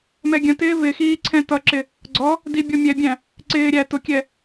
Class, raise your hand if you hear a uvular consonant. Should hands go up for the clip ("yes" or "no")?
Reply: no